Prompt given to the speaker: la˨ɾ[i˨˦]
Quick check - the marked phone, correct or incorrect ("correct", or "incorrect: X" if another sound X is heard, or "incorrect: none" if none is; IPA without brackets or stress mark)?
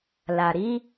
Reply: correct